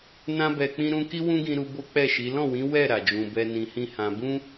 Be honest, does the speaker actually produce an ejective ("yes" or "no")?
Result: no